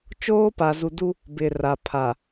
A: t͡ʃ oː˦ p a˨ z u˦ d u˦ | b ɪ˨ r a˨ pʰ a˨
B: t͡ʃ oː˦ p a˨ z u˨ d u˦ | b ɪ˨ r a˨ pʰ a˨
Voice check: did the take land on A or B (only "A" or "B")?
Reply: B